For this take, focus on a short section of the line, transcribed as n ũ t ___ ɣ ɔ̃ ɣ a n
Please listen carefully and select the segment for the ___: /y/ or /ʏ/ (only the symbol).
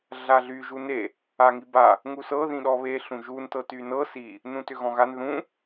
ʏ